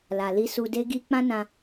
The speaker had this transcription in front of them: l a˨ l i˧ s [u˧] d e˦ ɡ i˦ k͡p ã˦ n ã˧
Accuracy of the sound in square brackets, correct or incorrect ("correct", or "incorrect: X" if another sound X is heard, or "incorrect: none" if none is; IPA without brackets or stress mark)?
correct